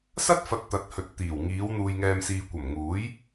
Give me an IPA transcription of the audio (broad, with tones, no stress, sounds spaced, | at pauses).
s ɐ˥ t̚ f ɐ˨ t̚ t̪ ɐ˨˥ t̚ h ɵ˨ t̚ t̪ iː˨˩ w ŋ iː˨˧ w n̪ uː˨ j ŋ ɛː˨ m s iː˨ kʷ ɐ˨˩ m ŋ uː˨˥ j